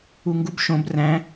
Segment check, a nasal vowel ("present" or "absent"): present